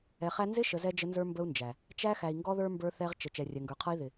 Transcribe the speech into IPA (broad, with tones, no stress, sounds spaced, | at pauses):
ɛ˨ χ æ˦ n z ɪ˦ ʃ ə˨ z ɛ˦ d͡ʒ ə˦ n z ə˞˦ m b ə˦ u̯ n d͡ʒ æ˨ | t͡ʃ æ˦ x æ˨ i̯ ŋ ɡ ɔ˦ ð ə˞˦ m b ə˞˦ θ ɛ˦ ʁ t͡ʃ ə˨ t͡ʃ ɛ˨ rʲ ɛ˨ ŋ ɡ ə˞˨ qʰ ʌ˦ i̯ ð ɪ˨